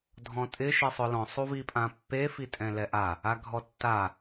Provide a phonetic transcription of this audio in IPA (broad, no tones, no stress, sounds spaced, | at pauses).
dʱ ɔ̃ tʼ ɪ ʃ e sˤ ʊ l ɔ̃ sˤ u v i pʼ ã pː e f i tʼ ɛ̃ l ɛ ʔ a | a ɡʱ ɔ tː a